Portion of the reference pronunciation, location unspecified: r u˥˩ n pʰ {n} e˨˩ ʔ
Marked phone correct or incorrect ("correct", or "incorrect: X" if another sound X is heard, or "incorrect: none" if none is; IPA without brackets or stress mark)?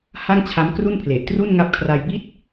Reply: incorrect: l